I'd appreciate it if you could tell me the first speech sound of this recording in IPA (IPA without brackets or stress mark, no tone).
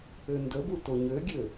ø